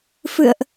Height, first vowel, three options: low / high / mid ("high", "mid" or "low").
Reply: high